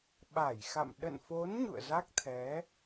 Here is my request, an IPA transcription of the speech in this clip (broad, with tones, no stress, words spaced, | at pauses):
ɓa˧˩jxa̰˧˨m ɗə̰˧˨nfo˨˦n ɲṵ˧˨ə̯za˦˥k̚t̪ʰɛ˨˦